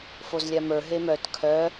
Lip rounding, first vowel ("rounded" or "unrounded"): rounded